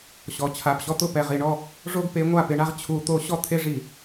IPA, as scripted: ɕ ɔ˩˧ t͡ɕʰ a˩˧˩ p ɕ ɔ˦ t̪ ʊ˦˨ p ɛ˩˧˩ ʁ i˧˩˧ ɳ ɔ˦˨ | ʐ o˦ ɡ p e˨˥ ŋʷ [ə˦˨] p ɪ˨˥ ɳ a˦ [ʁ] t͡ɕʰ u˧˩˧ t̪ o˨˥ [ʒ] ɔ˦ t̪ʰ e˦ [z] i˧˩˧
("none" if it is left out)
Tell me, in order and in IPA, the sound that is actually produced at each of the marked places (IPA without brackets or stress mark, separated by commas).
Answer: a˦˨, ʁ, ɕ, ʐ